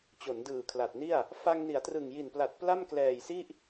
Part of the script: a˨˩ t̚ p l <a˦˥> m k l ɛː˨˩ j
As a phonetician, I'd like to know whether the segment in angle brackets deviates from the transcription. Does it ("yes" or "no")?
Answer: yes